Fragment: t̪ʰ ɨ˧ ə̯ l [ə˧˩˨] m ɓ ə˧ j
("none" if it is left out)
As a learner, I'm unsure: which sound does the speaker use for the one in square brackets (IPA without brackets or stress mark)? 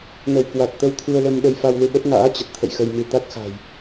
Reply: ə˧